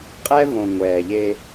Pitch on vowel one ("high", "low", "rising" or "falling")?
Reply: high